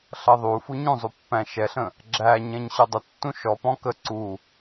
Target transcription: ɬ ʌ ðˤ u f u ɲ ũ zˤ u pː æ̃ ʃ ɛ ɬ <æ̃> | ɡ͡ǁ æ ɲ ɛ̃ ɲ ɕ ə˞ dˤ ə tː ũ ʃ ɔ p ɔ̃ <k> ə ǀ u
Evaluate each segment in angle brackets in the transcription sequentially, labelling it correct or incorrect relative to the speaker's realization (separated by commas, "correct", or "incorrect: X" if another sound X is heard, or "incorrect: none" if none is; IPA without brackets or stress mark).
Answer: incorrect: ə̃, correct